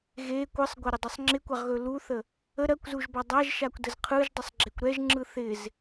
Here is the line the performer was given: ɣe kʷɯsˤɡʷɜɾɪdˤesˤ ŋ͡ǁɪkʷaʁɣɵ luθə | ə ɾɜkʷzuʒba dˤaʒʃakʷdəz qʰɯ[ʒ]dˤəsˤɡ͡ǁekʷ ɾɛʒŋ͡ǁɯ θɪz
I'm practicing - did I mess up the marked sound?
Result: no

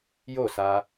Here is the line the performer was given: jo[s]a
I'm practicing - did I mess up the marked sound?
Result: no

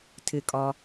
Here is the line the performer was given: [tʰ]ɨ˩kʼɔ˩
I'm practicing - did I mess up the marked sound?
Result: no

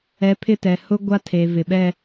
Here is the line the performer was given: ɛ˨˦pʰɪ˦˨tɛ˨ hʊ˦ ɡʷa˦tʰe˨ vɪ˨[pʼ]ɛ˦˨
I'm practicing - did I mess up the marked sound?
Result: yes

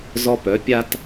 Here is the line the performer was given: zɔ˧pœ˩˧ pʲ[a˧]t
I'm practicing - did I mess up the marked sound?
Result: no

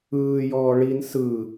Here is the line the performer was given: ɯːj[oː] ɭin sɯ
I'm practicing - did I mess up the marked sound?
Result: yes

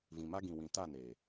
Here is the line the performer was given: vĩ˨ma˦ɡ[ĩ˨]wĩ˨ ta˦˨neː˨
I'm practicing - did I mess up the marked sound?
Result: no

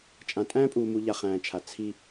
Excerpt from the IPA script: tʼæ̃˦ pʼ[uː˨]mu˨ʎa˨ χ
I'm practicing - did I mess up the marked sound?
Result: no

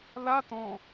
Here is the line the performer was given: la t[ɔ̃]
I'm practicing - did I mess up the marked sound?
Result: no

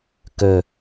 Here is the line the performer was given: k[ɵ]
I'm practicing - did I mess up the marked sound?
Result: no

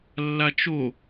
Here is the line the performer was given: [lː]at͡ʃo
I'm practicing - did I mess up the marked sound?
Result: no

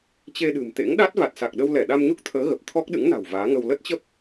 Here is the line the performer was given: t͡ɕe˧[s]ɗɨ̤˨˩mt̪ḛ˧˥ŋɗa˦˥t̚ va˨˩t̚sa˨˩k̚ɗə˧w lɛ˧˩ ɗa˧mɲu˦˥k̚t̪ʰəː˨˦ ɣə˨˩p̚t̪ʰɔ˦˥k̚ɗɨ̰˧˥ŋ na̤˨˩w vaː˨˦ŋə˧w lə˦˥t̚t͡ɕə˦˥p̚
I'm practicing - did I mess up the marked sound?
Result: yes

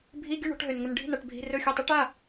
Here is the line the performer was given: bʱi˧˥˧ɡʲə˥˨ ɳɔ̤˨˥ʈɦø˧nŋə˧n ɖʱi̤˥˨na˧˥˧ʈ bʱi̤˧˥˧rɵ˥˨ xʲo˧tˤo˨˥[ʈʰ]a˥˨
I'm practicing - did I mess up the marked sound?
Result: yes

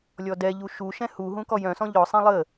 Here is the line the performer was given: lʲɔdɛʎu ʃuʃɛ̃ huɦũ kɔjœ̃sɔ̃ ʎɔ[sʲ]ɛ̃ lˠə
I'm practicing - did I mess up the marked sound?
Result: yes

